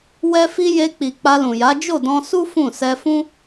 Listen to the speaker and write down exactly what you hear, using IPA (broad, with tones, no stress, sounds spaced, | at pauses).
w ɛ˦ f i˦ j e˧ k͡p i˨ k͡p a˧ l ũ˨ j a˨˦ d͡ʒ o˦˨ d ɔ̃˧ s u˦ f ũ˦˨ s ɛ˧ f ũ˦